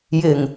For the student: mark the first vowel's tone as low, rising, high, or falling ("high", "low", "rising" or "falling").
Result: low